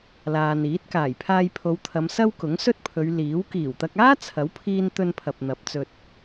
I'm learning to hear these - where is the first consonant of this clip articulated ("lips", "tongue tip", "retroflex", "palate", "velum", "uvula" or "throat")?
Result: tongue tip